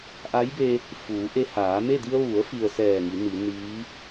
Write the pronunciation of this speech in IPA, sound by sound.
ʔ a˧˥ j b e˧ | f uː˩˧ ʔ e˧ h aː˩˧ m e˥˨ d i˧ ə̯ ʋ u˩˧ ə̯ f i˩ ə̯ s ɛː˧˩ ŋ i˩˧ n i˩˧ n iː˧˥

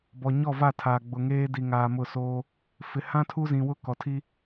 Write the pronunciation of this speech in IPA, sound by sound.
b ɔ˨ ɲ ɔ˦˨ v a˦˨ tʰ aː˨ ɡ͡b ʊ˨ ŋ eː˦ d i˨ ŋ aː˨ m ʊ˦˨ s oː˦ | f ɪ˨ h ã˦ tʰ u˦ z ĩ˨ w ʊ˦ k ɔ˨ tʰ i˦

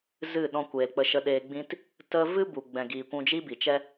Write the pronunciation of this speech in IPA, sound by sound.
z ɨ˦˨ ɗ ɔ̃˧ kʷ eː˨ l k͡p ə˧ ʃ ə˧ ɗ eː˧ ɡ͡b ĩ˦ t | t ə˧ v ɨ˦ b u˨ ɡ͡b ɛ̃˨ ɡ iː˨ kʷ ũ˧ d͡ʒ i˦ b i˨ t͡ʃ ɛ˦

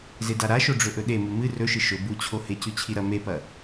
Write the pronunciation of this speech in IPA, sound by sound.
z e d a ɾ a ʃ o ɖ͡ʐ ɵ ʔ ɵ ɗ e m u m ɨ r ɵ ʃ ɨ ʃ ɵ b u t͡ɕʰ o h e c ʉ t͡ɕʰ i ɾ ɐ m e p ɐ

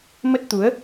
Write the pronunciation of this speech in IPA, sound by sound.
m ə˦˥ t̚ t̪ u˨˦ ə̯

